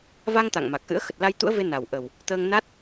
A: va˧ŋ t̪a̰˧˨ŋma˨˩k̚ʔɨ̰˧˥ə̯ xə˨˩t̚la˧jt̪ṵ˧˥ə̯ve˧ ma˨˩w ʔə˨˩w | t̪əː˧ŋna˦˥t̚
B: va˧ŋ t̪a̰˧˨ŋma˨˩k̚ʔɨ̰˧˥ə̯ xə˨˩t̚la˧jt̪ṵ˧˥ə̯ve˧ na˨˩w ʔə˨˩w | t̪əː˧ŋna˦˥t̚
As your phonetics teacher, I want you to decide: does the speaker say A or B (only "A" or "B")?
B